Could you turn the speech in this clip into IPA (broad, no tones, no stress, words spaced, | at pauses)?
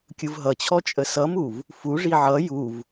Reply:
kʲɯvɦʌt͡ɕʰɔ t͡ʃʼəsʌmuv | fuʐi ʕʌ juv